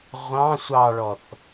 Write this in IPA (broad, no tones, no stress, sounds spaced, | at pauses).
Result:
ʁʷ ɑ̃ sʷ ɑ ɭ ɔ θ